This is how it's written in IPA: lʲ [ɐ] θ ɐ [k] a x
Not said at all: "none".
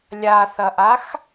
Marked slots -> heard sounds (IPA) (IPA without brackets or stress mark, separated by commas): a, ʔ